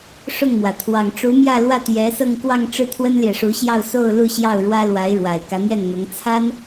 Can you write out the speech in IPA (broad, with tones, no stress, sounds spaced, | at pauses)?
ʂ ʊ˥˩ ŋ m w ä˩ t̪ʰ w ɑ˨˩ ŋ ʈ͡ʂ u˧˥ m j ä˥˧ l w ä˥˩ t̪ j ɛ˧˥ s ɤ˥˧ ŋ k w ɑ˥˧ ŋ ʈ͡ʂ ɻ̩˥˩ t̪ʰ w ə˥ n l j ɛ˨ ʂ u˧˥ ɕ j ɑ˥˧ ʊ̯ s o˥˧ ʊ̯ l u˥˧ ɕ j ɑ˥˩ ʊ̯ ɻ w ä˥ l w a˧˥ ɪ̯ ɻ w a˨˩ ɪ̯ k ä˧˥ n̪ j ɛ˥˩ n n̪ ʊ˧˥ ŋ t͡sʰ a˥ n